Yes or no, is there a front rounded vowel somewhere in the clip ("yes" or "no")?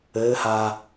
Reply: no